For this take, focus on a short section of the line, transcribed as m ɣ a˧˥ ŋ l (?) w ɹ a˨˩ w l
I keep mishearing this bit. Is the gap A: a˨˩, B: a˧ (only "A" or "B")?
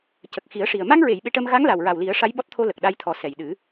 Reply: A